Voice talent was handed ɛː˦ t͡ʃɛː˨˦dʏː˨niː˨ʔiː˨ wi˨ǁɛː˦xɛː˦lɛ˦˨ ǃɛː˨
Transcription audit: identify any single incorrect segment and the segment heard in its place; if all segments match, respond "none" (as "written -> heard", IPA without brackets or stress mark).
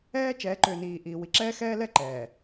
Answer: d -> ǃ